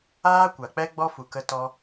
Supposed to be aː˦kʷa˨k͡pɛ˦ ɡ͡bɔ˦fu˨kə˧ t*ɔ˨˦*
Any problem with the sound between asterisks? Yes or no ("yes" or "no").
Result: yes